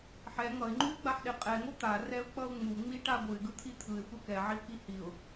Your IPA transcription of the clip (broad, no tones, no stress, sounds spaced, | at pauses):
ħ ɛ ŋ ʌ ɪ̯ ŋ͡ǃ u ɪ̯ ɡ͡b a ħ ɗ e qʼ ɛ ŋ o t̪ a r ɛ ʊ̯ k͡p ʌ ʊ̯ ŋ͡m u ŋ͡m i ʈ a ɡʷ ɯ ɪ̯ ɡ ɯ t̪ʰ i t̪ʰ ɯ ɪ̯ xʷ ɛ k ɛ ʕ i ʊ̯ k i h i ʊ̯